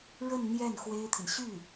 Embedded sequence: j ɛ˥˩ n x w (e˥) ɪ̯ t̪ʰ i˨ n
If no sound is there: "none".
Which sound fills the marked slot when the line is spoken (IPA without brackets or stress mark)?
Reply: e˥